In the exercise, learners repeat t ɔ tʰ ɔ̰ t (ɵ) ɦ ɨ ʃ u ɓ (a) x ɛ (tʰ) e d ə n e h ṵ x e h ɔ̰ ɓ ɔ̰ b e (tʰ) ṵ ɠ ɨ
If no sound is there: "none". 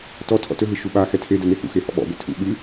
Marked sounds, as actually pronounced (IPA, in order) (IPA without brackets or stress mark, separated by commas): ɵ, a, tʰ, tʰ